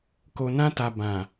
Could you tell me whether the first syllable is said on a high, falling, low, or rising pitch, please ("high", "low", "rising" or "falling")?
low